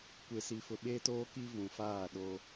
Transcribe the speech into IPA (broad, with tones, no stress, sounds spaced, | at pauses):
kʷ e˨ s i˨ f ʊ˨ ɓ eː˦ t oː˦ k i˦ v ũ˨ f aː˦˨ ɗ o˦